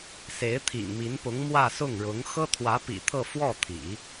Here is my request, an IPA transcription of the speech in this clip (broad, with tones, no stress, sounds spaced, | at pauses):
s e˧˥ ɪ̯ t̪ʰ ḭ˨˩ ŋ m i˧˥ n p ʊ˧˥ ŋ m w ä˥˧ s ʊ˥˩ ŋ ɻ ʊ˧˥ ŋ x ɤ˥ t̪ʰ w ä˧˥ p ḭ˨˩ t̪ʰ ɤ˥˧ f w ɔ˥˩ t̪ʰ ḭ˨˩˦